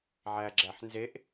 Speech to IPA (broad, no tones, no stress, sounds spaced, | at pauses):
ʕ æ ɡ͡ǁ æ ħ n z e ʔ